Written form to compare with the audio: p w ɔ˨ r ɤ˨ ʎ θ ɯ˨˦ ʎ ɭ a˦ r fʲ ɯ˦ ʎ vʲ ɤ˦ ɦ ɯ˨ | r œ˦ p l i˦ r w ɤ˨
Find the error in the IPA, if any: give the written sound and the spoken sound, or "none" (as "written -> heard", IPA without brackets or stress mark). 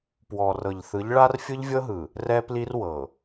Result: œ˦ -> ɛ˦